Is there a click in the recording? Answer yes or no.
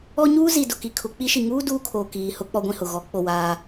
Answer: no